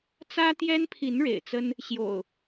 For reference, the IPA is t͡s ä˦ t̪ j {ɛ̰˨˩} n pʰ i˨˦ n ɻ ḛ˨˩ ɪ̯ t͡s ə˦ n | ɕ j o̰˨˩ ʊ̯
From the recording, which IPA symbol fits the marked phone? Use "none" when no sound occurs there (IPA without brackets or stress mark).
ɛ˦